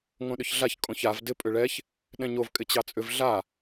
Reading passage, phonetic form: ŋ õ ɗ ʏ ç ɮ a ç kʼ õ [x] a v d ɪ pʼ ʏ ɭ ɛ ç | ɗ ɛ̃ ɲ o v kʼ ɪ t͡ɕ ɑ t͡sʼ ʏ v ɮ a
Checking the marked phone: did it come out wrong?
yes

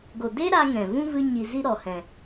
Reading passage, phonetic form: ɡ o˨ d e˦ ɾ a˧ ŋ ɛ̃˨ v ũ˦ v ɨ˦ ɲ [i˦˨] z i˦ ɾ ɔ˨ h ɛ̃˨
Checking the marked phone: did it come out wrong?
yes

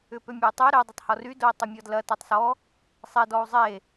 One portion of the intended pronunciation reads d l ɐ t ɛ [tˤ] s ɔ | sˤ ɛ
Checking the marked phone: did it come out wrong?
no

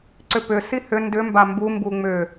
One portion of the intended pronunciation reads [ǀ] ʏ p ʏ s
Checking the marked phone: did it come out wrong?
no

